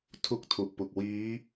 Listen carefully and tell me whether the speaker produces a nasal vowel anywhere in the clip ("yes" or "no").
no